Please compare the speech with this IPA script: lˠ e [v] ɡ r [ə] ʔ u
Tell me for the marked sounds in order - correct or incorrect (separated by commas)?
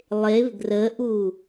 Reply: correct, correct